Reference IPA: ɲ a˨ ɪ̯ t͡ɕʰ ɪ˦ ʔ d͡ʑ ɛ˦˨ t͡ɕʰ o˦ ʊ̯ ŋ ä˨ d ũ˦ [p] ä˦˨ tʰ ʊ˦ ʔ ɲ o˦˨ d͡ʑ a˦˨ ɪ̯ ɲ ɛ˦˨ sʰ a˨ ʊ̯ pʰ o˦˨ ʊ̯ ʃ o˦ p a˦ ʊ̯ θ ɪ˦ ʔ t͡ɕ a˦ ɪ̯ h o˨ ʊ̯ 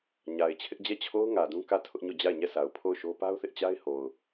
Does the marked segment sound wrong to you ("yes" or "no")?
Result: yes